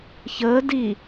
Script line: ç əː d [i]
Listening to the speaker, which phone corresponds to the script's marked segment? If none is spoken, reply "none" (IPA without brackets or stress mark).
i